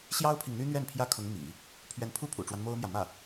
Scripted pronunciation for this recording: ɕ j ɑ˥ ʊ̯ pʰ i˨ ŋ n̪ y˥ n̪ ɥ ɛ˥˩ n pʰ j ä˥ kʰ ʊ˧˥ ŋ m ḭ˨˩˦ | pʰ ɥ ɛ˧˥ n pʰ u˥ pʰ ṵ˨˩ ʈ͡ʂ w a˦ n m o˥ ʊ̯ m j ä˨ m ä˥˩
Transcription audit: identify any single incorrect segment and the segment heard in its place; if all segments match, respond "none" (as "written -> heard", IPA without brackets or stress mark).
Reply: none